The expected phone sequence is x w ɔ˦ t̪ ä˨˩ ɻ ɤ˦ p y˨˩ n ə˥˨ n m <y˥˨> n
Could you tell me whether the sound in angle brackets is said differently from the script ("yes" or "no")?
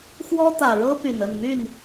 no